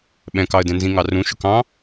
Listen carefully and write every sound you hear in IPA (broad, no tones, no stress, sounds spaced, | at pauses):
ɓ ɛ̃ k ɑ ə̯ d ɛ̃ n z ĩ ŋ ɑ r ũ ʃ ʊ k ɑ̃